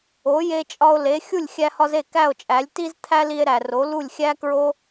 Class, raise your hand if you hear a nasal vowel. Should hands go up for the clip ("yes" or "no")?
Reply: no